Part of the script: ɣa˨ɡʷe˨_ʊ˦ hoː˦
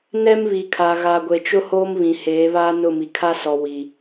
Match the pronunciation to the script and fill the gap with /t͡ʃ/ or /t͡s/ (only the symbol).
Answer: t͡ʃ